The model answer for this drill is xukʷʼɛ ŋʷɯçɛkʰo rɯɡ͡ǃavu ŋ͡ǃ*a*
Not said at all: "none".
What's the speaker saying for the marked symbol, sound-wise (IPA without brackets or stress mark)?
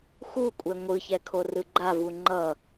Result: ʌ